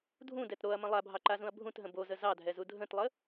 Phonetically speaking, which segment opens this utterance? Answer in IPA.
dʱ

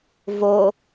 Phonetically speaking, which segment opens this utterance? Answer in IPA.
v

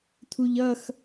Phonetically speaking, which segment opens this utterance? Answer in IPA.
tʰ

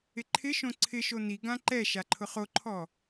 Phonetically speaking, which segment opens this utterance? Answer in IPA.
ɪ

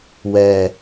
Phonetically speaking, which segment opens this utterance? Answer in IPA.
w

